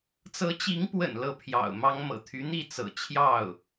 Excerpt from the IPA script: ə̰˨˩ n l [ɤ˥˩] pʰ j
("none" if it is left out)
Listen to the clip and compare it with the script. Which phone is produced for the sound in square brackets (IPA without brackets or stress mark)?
ɤ˥˩